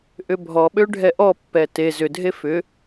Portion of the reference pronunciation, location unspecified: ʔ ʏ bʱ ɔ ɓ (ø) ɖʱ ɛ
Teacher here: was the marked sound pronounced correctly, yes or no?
yes